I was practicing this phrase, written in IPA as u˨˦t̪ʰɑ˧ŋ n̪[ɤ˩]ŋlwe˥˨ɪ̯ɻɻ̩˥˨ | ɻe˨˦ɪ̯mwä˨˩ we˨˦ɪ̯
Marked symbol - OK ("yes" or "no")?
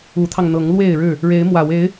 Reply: no